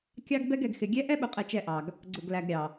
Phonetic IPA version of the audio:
kʲɑ˦ɡbɛ˦ɡ ɛ˨ɡxɪ˨ ɡʲɛ˦ ʔɛ˦ɓʊ˨qʼɛ˨ t͡ʃɛ˦ʔɑ˨ɡ | ɡ͡ǀʊ˨ɡlæ˨ɡ ɾʲɑ˨

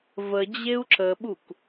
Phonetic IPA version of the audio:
və d͡ʑeu̯ǁəɓuk

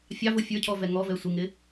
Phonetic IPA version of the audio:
fʲɑvʊ fʲə˞cʰɔ vɛŋɔvɛ sʷɪŋɪ

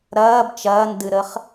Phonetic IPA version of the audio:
ɾɐːb t͡ʃɐːndɨɾəχ

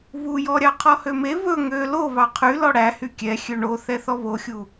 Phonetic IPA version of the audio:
βujɔɾʲɑ qʰɔhøme βɵ ŋø lo βɑqʰy lɔɽæ hykʲɛ xʲøɳo θɛθɔβoxʲu

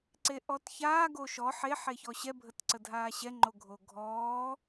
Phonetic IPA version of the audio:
ǀeʔɔtçaː ɡoʃɔ ħe ħeçɔɕɛ bʱətǀədʱaːɕɛ ŋ͡ǃoɡʱoɡʱɔː

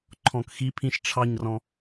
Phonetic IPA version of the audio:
ǃʰɔ̃kxipʰĩʃ ʈ͡ʂʰɑɲrɔ̃

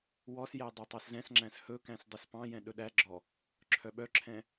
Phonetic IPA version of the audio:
wɔsjæ dˤætˤɑszɛ̃sŋ͡ǁæ̃s hɵkæ̃s dˤɵspɑ̃jɛ̃ ɗɵɗæɡ͡ǁɔ | ǁʰœɓœǁʰɛ̃

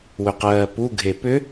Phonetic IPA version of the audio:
wʏqɜːpu ɡʱepʏ

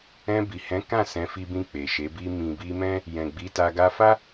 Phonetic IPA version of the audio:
ɛ̃˧bi˨hɛ̃˨˦ kã˦˨sɛ̃˨˦fi˧bĩ˧ k͡pe˨ʃe˨˦ bi˧mĩ˨bi˧mɛ̃˦ | jɛ̃˨ɡ͡bi˨˦ta˧ ɡa˧fa˦

